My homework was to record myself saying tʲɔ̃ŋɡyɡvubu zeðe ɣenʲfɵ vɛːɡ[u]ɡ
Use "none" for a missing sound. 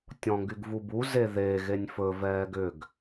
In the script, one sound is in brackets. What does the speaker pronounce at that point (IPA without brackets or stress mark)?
ʏ